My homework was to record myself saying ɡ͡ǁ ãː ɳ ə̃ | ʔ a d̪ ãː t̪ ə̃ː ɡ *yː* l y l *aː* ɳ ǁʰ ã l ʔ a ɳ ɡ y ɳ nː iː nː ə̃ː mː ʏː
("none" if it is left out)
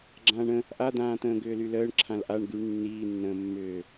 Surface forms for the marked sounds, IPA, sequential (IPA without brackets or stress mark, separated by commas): ʏː, əː